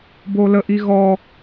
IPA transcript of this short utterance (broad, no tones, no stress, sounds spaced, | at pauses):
b o l ə ʔ i ɣ ɔ